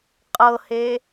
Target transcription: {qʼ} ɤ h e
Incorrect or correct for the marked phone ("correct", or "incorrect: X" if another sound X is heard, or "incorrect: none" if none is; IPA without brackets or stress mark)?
correct